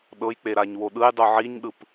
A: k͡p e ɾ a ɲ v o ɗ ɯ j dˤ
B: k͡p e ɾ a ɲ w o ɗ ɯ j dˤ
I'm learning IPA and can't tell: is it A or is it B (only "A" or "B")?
B